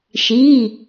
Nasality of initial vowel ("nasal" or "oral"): oral